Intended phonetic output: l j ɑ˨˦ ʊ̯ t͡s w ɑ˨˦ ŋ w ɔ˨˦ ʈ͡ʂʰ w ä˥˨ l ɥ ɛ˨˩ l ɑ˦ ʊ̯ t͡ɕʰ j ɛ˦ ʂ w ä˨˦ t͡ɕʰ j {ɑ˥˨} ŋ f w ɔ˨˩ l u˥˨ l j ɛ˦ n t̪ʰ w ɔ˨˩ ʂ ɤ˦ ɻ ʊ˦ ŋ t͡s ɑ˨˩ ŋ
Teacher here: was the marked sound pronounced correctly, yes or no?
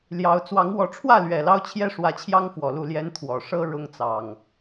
no